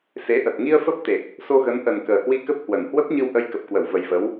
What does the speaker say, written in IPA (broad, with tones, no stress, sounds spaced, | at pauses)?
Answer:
s e˨˦ ʔ ə˨˩ t̚ ŋ i˧ ə̯ f ə˦˥ p̚ t̪ e˨˩ k̚ | s o˧ ɣ ə˨˦ n ʔ ə˨˩ n k əː˨˩ h w i˧ k ə˦˥ p̚ h w ə˨˩ n h w ə˦˥ p̚ ɲ ɨ˧ w ʔ ə˧ j k ə˨˩ p̚ k w ə˧˩ w v ə˨˩ j v ə˨˦ w